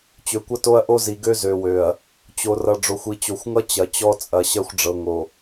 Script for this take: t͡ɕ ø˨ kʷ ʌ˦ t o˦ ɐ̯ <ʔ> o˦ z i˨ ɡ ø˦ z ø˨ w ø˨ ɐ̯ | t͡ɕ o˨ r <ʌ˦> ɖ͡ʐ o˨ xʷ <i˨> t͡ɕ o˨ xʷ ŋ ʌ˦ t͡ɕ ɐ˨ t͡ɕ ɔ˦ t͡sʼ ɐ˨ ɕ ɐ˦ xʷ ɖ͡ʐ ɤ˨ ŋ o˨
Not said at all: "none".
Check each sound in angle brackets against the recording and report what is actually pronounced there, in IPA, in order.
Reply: ʔ, ʌ˨, i˨

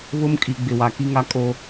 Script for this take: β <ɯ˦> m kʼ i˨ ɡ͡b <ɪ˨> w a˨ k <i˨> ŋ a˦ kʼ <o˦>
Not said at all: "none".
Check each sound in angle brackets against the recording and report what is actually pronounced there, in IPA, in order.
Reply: ʊ˦, ɪ˨, i˦, o˦

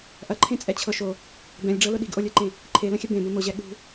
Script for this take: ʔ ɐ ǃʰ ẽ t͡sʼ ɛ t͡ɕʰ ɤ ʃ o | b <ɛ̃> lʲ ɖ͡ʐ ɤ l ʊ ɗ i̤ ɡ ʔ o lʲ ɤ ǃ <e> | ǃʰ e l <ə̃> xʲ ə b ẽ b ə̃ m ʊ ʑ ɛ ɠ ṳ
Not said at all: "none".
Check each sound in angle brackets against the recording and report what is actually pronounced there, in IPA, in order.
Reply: ɛ̃, ẽ, ə̃

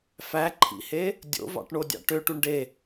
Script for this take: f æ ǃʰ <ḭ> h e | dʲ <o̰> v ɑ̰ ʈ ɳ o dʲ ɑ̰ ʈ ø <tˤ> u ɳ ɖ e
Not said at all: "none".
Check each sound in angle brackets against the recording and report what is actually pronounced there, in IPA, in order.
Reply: ḭ, o̰, ʈ

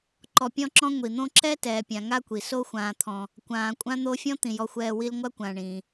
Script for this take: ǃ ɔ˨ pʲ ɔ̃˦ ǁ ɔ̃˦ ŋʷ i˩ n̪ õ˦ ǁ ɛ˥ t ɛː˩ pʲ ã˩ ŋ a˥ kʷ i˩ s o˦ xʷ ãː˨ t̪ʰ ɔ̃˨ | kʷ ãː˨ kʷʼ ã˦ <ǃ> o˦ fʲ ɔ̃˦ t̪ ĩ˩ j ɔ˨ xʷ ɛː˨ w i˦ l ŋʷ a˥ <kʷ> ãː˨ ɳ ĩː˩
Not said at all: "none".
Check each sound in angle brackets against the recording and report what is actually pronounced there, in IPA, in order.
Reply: n̪, kʷ

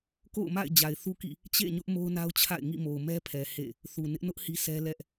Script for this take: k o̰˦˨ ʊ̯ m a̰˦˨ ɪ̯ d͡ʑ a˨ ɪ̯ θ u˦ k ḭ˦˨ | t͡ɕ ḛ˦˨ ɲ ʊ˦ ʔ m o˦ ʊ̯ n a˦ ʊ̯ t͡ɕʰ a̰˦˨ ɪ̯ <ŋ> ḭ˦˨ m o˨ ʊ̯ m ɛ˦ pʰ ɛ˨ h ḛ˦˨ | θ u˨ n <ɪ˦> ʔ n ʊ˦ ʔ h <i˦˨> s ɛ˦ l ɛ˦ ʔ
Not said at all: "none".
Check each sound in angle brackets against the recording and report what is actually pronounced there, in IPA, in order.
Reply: ŋ, ɪ˦, i˦

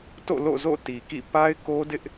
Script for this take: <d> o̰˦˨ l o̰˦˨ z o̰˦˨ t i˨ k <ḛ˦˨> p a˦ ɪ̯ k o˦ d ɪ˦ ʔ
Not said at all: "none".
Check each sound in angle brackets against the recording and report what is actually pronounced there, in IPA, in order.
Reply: t, ḭ˦˨

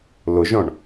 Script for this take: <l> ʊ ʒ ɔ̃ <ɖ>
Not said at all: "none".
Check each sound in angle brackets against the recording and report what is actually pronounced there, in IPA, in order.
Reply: l, ɳ

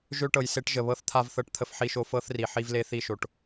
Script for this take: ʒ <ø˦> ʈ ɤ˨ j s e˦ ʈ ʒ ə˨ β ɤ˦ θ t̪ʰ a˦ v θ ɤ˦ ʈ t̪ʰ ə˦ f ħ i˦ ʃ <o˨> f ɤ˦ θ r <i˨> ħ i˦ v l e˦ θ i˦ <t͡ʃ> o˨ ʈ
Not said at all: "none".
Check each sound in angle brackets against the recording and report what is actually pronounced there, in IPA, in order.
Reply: ø˦, o˦, i˨, ʃ

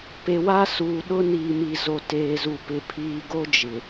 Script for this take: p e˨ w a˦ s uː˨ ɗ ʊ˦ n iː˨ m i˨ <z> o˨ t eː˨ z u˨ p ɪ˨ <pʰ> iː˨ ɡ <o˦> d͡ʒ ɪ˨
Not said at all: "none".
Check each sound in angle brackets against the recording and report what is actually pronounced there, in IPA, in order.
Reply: z, pʰ, o˦

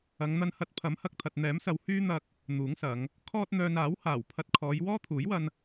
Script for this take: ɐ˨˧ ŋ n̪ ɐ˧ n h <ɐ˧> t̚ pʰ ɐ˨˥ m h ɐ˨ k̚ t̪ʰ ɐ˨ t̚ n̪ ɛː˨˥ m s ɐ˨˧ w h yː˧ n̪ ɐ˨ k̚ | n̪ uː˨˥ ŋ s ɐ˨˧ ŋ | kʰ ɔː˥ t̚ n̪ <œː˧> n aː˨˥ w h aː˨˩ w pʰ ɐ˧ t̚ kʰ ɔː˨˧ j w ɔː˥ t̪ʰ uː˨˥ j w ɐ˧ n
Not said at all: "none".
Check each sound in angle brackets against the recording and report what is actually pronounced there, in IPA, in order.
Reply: ɐ˧, œː˧

